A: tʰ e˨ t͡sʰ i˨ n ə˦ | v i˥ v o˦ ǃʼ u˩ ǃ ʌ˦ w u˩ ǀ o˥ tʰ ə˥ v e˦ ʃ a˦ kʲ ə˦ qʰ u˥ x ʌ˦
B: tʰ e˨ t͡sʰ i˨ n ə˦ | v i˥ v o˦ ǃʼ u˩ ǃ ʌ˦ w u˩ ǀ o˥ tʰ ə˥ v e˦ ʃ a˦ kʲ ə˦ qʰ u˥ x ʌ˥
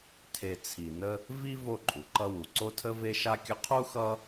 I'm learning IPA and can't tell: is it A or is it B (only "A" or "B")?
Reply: A